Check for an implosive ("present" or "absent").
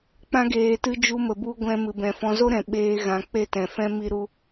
present